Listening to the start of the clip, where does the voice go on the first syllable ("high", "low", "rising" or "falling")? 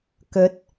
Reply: rising